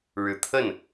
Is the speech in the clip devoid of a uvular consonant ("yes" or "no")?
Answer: yes